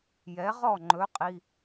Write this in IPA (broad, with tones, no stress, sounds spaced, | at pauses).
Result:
j ɛ˩˥ ʁ ɔ˥˩ ŋ͡ǃ ɵ˩˥ qʼ i˩˧˩